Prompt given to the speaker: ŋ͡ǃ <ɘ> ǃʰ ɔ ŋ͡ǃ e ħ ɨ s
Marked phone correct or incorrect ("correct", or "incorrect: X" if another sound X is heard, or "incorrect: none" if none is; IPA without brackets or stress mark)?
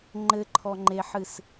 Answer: correct